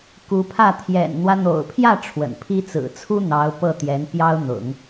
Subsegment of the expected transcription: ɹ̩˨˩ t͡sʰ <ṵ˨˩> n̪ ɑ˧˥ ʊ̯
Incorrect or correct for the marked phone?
incorrect: u˥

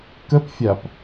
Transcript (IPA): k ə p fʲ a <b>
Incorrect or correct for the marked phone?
incorrect: p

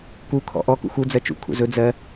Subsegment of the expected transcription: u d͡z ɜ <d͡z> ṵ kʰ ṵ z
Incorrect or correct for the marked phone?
incorrect: t͡ʃ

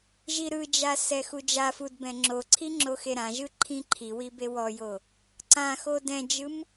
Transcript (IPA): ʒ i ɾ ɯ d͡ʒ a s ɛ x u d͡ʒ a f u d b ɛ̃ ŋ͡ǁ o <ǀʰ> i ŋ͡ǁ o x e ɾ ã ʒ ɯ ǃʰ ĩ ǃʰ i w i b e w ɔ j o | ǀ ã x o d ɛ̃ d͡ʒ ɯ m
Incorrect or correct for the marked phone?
correct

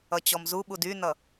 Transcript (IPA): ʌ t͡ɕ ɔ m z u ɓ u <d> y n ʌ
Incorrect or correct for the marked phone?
correct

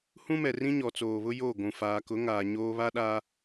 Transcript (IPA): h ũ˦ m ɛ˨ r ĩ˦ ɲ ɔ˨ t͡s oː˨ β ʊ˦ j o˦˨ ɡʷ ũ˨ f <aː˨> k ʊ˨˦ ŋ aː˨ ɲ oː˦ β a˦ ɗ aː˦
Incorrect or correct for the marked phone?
correct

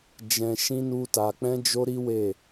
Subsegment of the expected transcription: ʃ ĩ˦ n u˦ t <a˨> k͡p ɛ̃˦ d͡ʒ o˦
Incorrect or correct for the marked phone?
incorrect: a˧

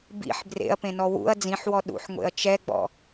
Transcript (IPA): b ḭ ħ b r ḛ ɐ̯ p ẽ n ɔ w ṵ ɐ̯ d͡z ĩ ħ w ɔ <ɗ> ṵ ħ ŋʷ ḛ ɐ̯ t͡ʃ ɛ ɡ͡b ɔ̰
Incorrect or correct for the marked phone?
correct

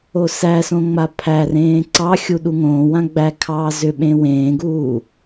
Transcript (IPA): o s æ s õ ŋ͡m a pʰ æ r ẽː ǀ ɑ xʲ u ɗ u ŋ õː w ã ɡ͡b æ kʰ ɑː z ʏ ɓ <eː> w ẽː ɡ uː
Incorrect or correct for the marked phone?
incorrect: ẽː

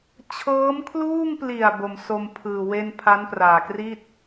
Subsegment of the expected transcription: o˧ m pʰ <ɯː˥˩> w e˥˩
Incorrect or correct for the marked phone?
incorrect: ɯː˨˩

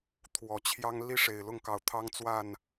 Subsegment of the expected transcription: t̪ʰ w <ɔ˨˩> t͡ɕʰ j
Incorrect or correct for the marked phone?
correct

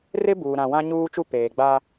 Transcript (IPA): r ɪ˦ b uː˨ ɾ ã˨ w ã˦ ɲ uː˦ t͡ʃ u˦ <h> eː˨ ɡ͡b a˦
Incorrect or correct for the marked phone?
incorrect: p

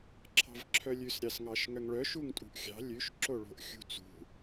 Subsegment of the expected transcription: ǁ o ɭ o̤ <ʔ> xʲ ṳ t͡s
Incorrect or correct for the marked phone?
correct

